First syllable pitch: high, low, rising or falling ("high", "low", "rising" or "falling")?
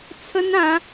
high